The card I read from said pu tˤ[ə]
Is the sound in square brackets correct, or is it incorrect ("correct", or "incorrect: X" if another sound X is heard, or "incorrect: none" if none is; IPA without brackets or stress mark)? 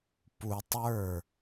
incorrect: ə˞